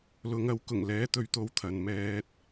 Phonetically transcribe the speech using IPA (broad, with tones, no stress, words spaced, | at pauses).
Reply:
lʊ˨˧ŋɐ˨˧w kʊ˨˩ŋlɛː˨˥t̪ɵ˨˧ɥ t̪o˧wt̪ʰɐ˨˧n mɛː˧t̚